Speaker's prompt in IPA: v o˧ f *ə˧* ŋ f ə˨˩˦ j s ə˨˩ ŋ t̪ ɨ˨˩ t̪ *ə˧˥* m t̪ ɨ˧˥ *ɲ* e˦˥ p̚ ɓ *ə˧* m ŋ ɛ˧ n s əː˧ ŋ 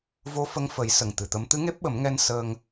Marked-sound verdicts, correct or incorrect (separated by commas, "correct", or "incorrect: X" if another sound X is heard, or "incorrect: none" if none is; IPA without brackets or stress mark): correct, correct, incorrect: ŋ, incorrect: ə˨˩˦